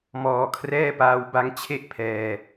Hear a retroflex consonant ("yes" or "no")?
no